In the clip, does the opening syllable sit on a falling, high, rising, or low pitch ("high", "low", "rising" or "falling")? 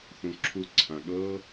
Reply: low